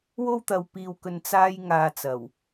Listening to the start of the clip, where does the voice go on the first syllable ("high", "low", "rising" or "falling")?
high